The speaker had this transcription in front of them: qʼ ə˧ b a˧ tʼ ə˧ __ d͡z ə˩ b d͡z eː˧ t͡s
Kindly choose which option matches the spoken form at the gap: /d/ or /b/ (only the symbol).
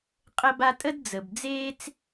d